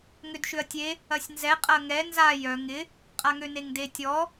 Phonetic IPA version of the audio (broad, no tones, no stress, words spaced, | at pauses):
ŋʏdʃʏɐ̯tʲe | ɐsʲnzɛ qʼɐŋɛ nza jœ ŋɪ | qʼaŋøneŋde tʲɔ